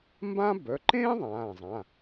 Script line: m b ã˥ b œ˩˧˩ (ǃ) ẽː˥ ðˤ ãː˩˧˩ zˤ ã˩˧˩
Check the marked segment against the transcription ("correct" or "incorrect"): correct